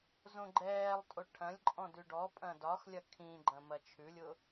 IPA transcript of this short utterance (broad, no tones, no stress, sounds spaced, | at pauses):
z õ ɡ͡ǃ ɛː lˠ tʼ o ʈʰ ɐ̃ lʲ ǃʼ ɔ̃ d ʉ ɖ ɔ pʼ ɐ̃ d ɒ x lʲ ɐ kʰ ĩ ɡ͡ǃ ɐ̃ m ɐ t͡ʃʰ ʉ lʲ ʊ